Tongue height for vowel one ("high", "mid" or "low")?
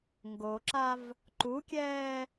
mid